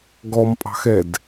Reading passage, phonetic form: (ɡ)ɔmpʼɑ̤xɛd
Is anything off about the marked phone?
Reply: no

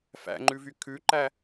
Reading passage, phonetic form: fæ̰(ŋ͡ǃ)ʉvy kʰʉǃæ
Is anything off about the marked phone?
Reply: no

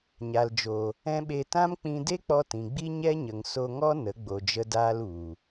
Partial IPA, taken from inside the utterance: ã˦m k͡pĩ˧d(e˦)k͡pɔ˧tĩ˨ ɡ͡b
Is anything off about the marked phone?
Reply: no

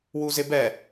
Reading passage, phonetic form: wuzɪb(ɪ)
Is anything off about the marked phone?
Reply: yes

